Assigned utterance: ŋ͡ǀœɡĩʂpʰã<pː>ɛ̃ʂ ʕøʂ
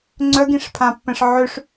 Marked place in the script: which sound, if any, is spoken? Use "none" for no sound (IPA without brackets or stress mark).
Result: pː